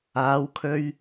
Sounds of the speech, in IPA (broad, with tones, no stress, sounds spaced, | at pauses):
aː˨˥ w kʰ ɵ˧ ɥ